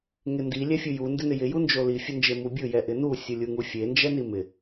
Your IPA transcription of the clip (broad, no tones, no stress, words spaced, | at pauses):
ŋɪndi lʲɛfʲuju ndɪnɪjɪ jund͡ʒoli fʲʊnd͡ʒemubʲʊ jɛʔɪnu sʲulʲuŋufʲe nd͡ʒɛnimɪ